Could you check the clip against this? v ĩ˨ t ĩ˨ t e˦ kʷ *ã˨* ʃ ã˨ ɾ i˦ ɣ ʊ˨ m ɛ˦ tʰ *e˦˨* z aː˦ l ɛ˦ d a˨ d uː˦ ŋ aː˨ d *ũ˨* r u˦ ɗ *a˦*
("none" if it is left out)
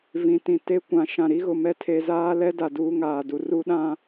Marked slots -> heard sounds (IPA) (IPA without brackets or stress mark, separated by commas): ã˨, e˨, u˨, ã˦